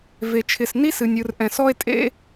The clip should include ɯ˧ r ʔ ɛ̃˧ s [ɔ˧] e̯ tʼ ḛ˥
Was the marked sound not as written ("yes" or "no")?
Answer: yes